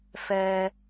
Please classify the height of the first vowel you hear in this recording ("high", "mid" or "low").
mid